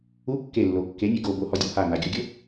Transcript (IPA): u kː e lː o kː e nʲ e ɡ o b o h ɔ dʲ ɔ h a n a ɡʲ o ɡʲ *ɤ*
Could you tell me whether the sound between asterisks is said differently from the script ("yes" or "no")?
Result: no